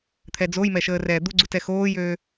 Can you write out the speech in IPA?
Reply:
t̪ʰɛd͡zojmɛ ʃəːrɛːd̪uɡ͡ǀut ɛxoːjøː

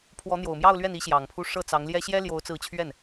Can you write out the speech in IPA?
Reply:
pʰwɔ˧˥n̪jo˨˩ʊ̯mjɑ˥˧ʊ̯lɥɛ˥˩n i˥ɕjɑ˨˩ŋpʰu˥˧ ʂɤ˥˩ t͡sɑ˧˥ŋljɛ˥ ɕjɛ˥ljo˧˥ʊ̯t͡sɹ̩˧˥t͡ɕʰɥɛ˥˩n

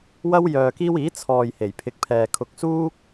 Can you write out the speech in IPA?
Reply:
wɐ˥wjœː˧ kiː˥w iː˨˥ t͡sʰɔː˧j he˨˩jpʰɪ˨˥k̚pʰɛː˨ kʰʊ˧k̚suː˥k̚

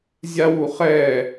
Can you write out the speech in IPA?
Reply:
zʲawuχɛ

